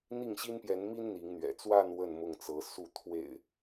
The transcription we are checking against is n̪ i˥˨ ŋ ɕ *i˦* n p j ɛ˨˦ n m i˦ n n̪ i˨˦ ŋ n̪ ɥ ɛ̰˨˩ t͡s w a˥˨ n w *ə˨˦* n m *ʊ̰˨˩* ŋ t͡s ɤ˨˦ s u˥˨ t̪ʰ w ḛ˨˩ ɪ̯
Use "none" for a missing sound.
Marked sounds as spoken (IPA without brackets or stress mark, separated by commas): i˦, ə˥˨, ʊ˥˨